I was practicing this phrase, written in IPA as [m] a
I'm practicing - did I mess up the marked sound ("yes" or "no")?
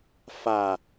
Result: yes